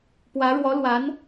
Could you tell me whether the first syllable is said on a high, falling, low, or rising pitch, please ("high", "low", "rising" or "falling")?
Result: rising